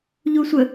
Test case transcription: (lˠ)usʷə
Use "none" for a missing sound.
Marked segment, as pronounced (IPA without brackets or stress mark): ʎ